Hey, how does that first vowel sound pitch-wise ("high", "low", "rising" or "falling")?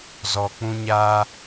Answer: low